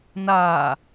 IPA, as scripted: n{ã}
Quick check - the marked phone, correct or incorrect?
incorrect